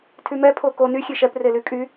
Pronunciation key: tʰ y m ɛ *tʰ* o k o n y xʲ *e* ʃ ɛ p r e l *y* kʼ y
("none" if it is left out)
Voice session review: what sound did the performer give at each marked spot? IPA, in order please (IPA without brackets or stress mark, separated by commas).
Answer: pʰ, e, y